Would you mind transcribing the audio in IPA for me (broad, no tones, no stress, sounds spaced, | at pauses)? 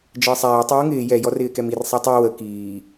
d͡ʒ əː sˤ æː tˤ w u ŋ ɪː j ɛ j ɔ r ɪː k ɛ m i r sˤ ɛ tˤ ə˞ w ə k iː